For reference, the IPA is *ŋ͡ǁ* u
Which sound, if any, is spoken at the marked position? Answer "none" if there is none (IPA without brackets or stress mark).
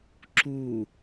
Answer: ǁ